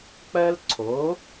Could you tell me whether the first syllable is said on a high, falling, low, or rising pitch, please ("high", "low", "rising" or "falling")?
high